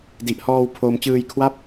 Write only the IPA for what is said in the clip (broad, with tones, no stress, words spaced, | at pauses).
di˨˩ʔhɔː˧wpʰoː˧m t͡ɕɯː˧jkʰwa˥˩p̚